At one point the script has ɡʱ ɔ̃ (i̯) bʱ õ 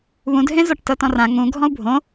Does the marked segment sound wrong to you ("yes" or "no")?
yes